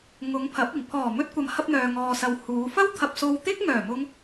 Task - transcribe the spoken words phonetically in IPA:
ŋ ʊ˨˧ ŋ pʰ ɐ˨˥ p̚ ɪ˨˩ ŋ pʰ ɔː˨˩ m ɵ˧ t̚ kʷ ɐ˨ m h ɐ˧ p̚ n̪ œː˨ ŋ ɔː˨ s ɐ˨ w h uː˨˧ f ɐ˥ w t̪ʰ ɐ˧ p̚ s o˧ w t̪ ɪ˥ k̚ ŋ œː˨˩ m ʊ˧ ŋ

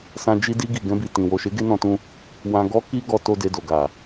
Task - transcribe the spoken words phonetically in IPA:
s ã˧ d͡ʒ i˧ d i˧ ɡ i˨ ɡ ɛ̃˧ b i˨ t ĩ˨ w o˨ ʃ e˨˦ ɡ e˦ n ɔ̃˧ t ũ˧ | w ã˧ ɡ ɔ˦ k i˦ ɡ ɔ˧ t o˦ d e˧ d o˨ ɡ a˨

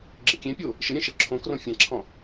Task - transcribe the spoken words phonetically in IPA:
ɡ͡ǁ ə kʲ ẽ pʲ o | ʃ ə ɾʲ ɛ̃ ʃ ə ǁʰ õ k r õ fʲ ã ǁʰ ɔ̃

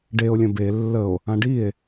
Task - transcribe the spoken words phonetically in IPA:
ɖ e o̯ lʲ ə̃ b e lː ə o̯ | ã ɖ i e̯

